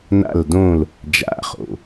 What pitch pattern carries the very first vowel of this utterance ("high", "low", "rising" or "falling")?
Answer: falling